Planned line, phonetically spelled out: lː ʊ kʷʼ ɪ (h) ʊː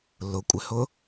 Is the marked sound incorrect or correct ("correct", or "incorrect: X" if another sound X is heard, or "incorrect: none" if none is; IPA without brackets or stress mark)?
correct